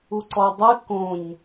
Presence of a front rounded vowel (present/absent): absent